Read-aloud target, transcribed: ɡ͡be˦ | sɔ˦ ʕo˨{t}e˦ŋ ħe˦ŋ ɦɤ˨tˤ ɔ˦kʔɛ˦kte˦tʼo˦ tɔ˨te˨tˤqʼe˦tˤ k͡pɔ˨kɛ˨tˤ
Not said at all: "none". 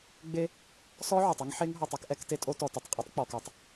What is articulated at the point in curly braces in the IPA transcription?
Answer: tˤ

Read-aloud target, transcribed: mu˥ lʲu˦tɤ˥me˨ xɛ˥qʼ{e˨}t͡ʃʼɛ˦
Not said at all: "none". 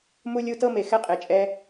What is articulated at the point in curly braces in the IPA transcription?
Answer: e˨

